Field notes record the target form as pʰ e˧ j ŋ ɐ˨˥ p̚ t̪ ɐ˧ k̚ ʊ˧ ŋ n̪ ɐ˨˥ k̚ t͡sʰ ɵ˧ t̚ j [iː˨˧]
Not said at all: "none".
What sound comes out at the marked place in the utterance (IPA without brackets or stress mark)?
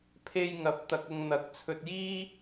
iː˥